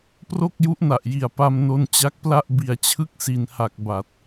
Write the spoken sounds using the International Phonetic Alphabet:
p r o˥˩ k̚ j u˦˥ ʔ n a˨˩ ʔ j i˨˩ a̯ p a˧ m n o˧ n t͡ɕ a˦˥ k̚ p l a˥˩ ʔ b i˨˩ a̯ t͡ɕʰ ɯ˥˩ k̚ s i˨˩ n h a˨˩ k̚ b a˨˩ t̚

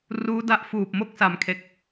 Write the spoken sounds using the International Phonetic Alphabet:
r uː˦˥ d a˦˥ ʔ f uː˨˩ p̚ m o˦˥ k̚ s a˩˦ m kʰ e˨˩ k̚

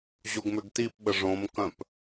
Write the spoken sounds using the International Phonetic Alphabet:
ʑ o ɡ m ʏ ɡ t i p ɓ ə ʐ õ m k œ̃ p

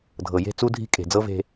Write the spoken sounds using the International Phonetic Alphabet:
dʱ ɤ˨ j e̤˦˨ t͡s u˦ dʱ i̤˦ kʼ e̤˨ d͡z ɤ˦ v e̤˦

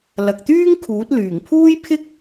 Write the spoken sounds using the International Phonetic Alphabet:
l ɐ˨ k̚ t̪ yː˥ ŋ kʰ uː˨˥ t̚ l yː˨˩ ŋ pʰ uː˥ j pʰ ɪ˥ k̚

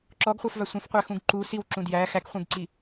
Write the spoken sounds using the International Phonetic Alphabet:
ǁ ɔ ɡ χʷ æ f v a sʷ ẽ f qʷ æ x ũ ɡ ǃ u s i w ǁ ũ d j æ x æ k χʷ ẽ ɡ ǀ i

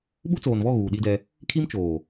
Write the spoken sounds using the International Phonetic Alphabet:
ɓ u˦ t͡s oː˨ n β ɔ˦˨ ɣ uː˨ ɗ i˦ d ɛ˦ | kʰ i˦ m t͡ʃ oː˨

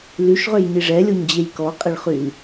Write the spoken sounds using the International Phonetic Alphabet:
l y ʃ ʁ ø j ɲ i ʐ ɛ lʲ o ɲ d͡ʑ e j k ɔ qʼ e ɭ χ y l

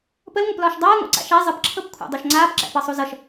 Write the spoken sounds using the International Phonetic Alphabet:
p ə l ŋʷ ʌ p l ɒː ʃ dˤ aː ŋʷ æ̰ ǀ a̰ ʃ æ zˤ ə p ǁʰ ɤ p kʷʰ æ̰ dˤ o ʃ ŋ͡ǀ aː p ǁ æ̰ p ɤ sˤ u z ʌ ʃ

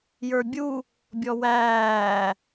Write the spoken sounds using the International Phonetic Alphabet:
j ə˞ bʲ u | bʲ ɔ w æː

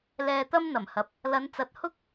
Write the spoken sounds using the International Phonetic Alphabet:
l ɛː˧ t̪ ɐ˥ m n̪ ɐ˨˩ m h ɐ˨ p̚ | l ɐ˨˧ n t͡s ɐ˨˥ t̚ h ʊ˥ k̚

